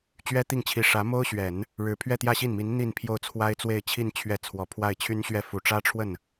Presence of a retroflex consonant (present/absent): present